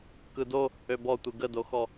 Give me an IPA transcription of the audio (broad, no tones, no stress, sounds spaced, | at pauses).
k ɯ d o | ø b ɔ tʷ ɯ ɡ ə d o x ɔ